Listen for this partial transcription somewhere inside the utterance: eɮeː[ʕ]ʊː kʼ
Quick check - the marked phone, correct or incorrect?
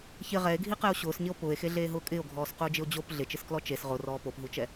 incorrect